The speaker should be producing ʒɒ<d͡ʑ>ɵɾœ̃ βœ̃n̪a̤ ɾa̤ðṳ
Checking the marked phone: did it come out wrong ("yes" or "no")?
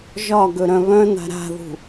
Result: yes